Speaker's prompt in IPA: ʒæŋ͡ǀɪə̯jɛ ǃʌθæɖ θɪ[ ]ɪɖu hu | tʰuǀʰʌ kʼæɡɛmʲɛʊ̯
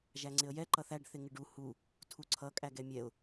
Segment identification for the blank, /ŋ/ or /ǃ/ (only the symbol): ŋ